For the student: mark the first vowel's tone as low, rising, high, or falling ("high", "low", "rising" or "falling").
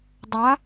rising